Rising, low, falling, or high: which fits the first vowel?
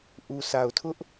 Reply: low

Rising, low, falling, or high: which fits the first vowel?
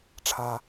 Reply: low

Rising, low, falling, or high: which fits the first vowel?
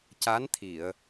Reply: rising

